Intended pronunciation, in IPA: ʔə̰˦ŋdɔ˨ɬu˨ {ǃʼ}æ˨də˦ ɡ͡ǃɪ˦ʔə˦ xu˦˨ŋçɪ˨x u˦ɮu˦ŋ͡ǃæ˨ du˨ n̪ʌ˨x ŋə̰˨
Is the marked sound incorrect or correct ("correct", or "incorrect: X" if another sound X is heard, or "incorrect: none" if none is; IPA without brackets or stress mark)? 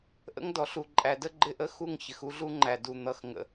correct